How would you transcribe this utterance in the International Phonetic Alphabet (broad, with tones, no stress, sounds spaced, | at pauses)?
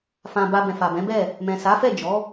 f ã˨ b a˧ b ɛ̃˨ f a˨ b ɛ̃˨˦ b ɛ˦˨ | m ɛ̃˨ s a˨˦ f ɛ˦˨ d͡ʒ ɔ˨˦